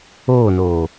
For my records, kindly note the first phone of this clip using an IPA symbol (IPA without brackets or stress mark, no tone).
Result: oː